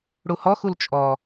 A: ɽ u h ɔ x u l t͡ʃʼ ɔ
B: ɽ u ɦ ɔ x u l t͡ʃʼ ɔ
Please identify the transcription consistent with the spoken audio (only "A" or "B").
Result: A